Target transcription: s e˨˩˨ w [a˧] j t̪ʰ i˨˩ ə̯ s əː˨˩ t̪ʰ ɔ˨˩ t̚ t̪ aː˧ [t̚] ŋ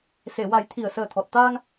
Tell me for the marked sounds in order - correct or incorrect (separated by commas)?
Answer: incorrect, incorrect